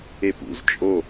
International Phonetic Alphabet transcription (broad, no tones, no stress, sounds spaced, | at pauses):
e p ṵ z t͡ʃʼ o